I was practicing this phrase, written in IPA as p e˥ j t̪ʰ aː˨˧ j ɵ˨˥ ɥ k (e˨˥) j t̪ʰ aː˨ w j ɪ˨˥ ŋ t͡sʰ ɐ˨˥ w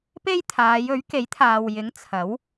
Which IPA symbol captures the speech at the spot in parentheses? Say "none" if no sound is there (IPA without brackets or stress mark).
e˨˥